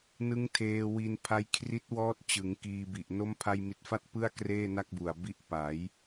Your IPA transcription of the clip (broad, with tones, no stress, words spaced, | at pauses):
nɯ˦˥ŋ tʰeː˧wi˧n pʰa˦˥jkʰri˦˥t̚wɔː˦˥t̚t͡ɕɯ˩˦ŋ kiː˧bi˨˩ʔ no˦˥mpʰa˧jmi˨˩t̚fa˦˥t̚ pɯ˥˩a̯ kreː˥˩na˥˩k̚bu˨˩a̯ bi˦˥ʔpa˩˦j